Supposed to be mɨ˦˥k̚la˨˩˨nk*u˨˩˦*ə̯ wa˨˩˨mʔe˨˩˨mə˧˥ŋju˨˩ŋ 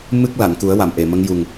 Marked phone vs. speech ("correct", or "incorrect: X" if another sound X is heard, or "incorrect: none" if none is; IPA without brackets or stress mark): correct